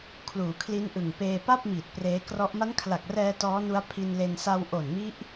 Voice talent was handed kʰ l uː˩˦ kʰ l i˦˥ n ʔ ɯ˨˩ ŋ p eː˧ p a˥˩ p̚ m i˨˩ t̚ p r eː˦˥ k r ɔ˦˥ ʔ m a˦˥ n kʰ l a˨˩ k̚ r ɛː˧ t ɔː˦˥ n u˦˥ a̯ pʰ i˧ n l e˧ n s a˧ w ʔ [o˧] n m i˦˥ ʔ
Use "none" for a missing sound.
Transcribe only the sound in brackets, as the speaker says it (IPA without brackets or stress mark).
o˨˩